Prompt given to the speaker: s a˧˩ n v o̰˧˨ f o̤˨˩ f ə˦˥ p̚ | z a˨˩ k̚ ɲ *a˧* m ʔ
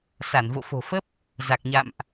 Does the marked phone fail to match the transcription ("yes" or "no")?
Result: yes